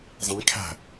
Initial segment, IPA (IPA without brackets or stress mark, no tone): zˤ